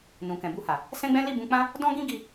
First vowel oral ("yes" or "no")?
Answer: no